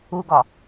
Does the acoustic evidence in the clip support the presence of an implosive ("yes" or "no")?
no